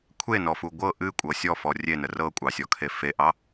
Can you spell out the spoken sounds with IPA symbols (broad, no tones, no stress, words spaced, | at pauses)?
kʷʰenɔfu ɡʷɤ ʔɨkʷʼɤ sʲɔfɔ rʲenə rɤkʷʼɑsʲɔkʰe feʔɑ